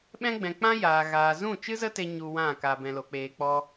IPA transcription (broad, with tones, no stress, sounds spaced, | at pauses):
ɓ ɛ̃˦ ɡ͡b ɛ̃˨ k͡p ã˦ j aː˨ ɣ aː˨ z ũ˦˨ t͡ʃ ɨ˦ z ə˦ t e˦ ɲ u˧ w ã˦˨ k a˧ b ɛ̃˧ l o˨ k͡p eː˧ k͡p ɔ˦